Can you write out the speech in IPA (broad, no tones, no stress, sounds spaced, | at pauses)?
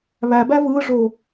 β æ b æ v ɯ ʐ o